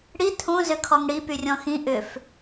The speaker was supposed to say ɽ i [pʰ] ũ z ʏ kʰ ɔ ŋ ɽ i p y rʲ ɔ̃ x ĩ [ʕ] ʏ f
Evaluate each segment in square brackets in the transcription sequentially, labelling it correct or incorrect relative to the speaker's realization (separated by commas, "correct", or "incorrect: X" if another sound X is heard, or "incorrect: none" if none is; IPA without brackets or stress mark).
incorrect: tʰ, incorrect: ʔ